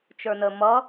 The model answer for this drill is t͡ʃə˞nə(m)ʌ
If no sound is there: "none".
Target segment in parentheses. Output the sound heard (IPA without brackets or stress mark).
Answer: m